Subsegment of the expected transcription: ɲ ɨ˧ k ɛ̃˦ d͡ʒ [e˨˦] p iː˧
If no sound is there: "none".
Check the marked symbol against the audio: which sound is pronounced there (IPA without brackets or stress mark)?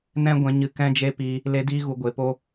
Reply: e˦